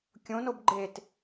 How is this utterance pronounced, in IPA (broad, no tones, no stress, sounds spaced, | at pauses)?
kʲ õ n o b ɡ͡ǃ e t